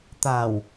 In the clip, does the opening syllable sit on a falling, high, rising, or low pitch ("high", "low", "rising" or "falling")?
low